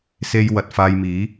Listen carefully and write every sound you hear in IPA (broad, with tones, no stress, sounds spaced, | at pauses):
s e˥ j w ɐ˧ t̚ f aː˧ j m iː˨˥